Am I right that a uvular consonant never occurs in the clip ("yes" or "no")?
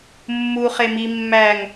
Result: no